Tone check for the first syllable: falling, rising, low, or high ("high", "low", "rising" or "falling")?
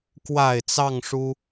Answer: low